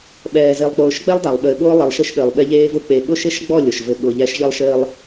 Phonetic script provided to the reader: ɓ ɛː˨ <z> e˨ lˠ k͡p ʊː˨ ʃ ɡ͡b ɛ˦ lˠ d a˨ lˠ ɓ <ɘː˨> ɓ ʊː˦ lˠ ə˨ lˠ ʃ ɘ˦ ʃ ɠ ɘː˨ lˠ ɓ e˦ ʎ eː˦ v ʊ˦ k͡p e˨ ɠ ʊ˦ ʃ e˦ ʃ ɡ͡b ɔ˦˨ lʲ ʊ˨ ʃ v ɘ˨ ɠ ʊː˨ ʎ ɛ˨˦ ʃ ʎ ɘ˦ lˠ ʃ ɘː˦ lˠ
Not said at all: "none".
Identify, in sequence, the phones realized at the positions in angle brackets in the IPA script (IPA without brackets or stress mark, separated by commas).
z, ɘː˨